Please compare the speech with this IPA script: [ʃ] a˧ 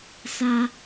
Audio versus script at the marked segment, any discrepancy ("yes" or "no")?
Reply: yes